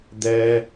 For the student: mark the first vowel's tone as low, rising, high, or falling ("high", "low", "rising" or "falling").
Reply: high